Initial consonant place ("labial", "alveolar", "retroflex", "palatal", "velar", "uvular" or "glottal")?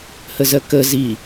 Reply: glottal